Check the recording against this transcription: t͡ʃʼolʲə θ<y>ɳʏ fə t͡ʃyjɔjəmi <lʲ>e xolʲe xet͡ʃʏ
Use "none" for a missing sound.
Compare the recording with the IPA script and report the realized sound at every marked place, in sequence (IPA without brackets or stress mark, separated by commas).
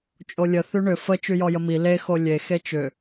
y, l